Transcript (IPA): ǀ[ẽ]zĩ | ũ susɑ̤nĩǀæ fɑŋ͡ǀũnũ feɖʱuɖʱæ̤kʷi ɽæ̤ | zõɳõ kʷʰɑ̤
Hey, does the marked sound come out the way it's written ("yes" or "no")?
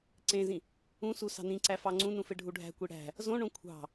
yes